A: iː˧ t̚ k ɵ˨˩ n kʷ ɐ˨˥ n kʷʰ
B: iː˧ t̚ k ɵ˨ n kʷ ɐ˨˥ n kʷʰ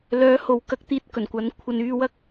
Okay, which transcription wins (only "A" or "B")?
A